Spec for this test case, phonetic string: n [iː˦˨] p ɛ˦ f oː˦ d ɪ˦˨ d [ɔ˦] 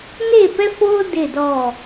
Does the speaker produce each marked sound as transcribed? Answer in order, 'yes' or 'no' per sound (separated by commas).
no, no